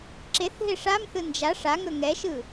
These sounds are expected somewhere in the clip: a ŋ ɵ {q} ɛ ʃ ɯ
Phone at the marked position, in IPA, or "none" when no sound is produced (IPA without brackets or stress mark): ŋ